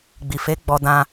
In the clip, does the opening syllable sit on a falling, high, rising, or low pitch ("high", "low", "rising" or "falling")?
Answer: low